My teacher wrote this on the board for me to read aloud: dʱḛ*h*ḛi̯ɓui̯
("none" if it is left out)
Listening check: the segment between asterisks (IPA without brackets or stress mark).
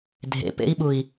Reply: p